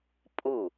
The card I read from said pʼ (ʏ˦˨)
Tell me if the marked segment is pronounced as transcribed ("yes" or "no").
no